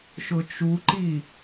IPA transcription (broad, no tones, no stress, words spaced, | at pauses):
ʃʊt͡ʃuǃi